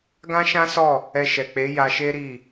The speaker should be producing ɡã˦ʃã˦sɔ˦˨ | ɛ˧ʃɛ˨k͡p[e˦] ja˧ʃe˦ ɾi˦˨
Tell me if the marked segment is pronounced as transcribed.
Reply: no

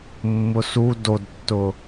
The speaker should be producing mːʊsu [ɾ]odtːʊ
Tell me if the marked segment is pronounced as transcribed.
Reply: no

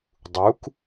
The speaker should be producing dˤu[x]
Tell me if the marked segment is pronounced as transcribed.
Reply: no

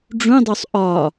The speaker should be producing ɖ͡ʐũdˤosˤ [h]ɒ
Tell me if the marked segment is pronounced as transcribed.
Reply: no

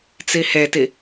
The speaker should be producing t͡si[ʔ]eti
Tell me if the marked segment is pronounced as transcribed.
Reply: no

